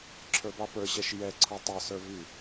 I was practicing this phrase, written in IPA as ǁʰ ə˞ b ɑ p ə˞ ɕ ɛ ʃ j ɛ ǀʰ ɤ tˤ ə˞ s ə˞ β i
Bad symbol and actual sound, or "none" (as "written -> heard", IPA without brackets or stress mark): none